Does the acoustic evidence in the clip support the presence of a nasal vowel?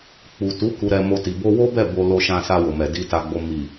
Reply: yes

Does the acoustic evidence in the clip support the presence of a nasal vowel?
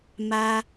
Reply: no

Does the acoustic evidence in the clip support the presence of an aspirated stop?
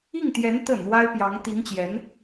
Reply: no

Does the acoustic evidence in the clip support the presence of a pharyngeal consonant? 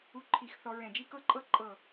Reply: no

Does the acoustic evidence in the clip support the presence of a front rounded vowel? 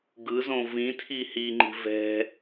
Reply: no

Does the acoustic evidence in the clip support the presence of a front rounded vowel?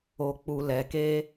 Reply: no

